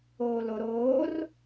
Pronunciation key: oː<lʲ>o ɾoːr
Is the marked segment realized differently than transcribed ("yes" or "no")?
yes